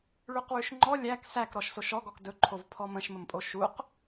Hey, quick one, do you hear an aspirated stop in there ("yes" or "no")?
yes